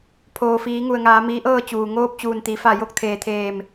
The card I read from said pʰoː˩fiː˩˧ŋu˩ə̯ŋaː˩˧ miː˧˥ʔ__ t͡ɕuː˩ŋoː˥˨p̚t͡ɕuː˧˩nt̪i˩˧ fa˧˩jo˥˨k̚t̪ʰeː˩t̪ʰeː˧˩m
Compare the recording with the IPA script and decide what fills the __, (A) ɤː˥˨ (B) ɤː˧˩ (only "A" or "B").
A